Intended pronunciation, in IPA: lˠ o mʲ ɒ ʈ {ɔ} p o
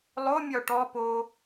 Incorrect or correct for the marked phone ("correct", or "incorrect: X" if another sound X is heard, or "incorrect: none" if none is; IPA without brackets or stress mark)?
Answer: correct